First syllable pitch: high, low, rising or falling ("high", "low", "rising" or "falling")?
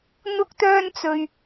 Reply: high